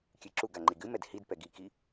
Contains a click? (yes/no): yes